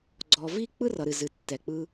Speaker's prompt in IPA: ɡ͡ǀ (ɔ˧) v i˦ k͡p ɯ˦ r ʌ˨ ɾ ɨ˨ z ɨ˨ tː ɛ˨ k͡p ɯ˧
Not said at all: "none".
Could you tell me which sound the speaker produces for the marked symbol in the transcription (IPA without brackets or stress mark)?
ɔ˧